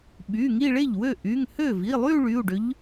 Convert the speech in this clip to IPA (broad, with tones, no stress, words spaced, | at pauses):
ɓy˩˧˩ ŋi˥˧ɭe˥˩ʎwø˥˩ ʔy˩˧˩ŋhø˥˩ vi˩˧˩lˠy˥˧ ɭy˩˧˩u̯ɖø˧˥ʎ